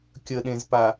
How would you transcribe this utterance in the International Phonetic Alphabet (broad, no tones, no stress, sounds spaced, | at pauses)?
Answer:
kʲ ə ɗ ẽ z p a